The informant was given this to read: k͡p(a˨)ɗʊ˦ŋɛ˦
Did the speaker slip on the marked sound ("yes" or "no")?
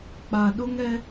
no